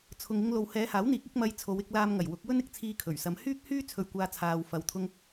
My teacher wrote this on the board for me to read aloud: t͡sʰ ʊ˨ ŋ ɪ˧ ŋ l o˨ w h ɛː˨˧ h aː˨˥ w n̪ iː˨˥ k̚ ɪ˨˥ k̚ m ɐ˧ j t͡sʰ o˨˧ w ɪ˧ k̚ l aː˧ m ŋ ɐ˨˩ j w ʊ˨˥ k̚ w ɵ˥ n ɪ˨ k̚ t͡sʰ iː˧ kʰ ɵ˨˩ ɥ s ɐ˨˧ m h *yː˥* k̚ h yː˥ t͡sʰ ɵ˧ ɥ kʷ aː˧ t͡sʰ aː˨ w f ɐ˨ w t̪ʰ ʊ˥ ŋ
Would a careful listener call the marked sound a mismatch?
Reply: no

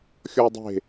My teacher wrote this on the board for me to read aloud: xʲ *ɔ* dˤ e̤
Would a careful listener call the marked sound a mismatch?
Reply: no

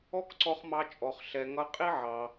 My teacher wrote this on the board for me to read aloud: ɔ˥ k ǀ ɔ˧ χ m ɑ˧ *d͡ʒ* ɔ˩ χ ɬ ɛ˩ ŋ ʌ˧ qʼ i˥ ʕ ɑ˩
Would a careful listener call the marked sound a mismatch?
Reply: yes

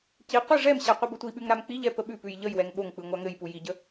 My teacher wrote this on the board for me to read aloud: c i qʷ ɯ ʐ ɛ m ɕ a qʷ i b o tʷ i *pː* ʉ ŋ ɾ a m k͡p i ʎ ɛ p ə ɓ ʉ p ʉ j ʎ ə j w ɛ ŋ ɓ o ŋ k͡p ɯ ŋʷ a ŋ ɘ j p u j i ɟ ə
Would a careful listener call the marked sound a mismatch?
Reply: yes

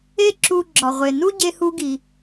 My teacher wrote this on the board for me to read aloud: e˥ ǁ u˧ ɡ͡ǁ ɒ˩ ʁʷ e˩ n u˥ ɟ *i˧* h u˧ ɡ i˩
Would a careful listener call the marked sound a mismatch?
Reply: yes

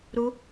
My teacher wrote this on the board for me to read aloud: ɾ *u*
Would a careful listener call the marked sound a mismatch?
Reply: no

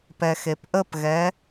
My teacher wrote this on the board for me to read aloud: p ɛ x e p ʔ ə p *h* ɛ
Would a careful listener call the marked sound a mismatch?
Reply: yes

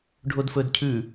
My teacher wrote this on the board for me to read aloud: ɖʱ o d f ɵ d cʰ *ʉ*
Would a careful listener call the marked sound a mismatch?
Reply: no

